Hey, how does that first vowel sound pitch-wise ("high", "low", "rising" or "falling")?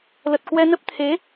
low